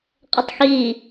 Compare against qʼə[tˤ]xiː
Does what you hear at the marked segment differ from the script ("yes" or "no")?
no